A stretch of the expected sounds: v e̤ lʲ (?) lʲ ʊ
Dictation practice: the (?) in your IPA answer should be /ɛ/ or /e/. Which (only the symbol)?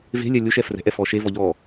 ɛ